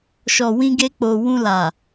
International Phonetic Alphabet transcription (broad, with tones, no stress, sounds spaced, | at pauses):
ʃ ɔ˨ w ĩ˧ ɡ e˧ k͡p o˨ w ũ˧ l a˨